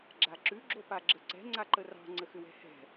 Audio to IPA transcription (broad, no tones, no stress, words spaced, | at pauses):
ɡ͡ǁaǁʉ ɡ͡ǁopaɡ͡ǁəǀɛ̤ ŋ͡ǀaǃərɑ̤ ŋ͡ǀəxʏwɛ̤hɛ̤